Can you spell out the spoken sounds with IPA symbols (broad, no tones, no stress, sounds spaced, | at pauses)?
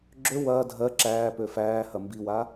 ɡ͡ǁ ø w ɐː dʱ ɜ ǁ æː p ø f æː h ɐ m b i w a